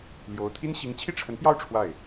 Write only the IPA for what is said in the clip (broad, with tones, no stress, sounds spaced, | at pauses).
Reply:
l j o˧˥ ʊ̯ t̪ʰ i˥ n ɕ i˧˥ ŋ t͡ɕʰ i˥˩ ʈ͡ʂʰ ə˧˥ n p j ɑ˥˧ ʊ̯ ʈ͡ʂʰ w a˥˩ ɪ̯